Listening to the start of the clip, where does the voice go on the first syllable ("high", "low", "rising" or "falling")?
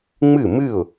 falling